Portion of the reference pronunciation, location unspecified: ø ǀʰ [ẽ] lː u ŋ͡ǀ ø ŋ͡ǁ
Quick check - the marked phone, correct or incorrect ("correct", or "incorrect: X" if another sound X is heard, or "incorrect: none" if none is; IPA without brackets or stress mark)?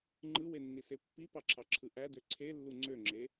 incorrect: e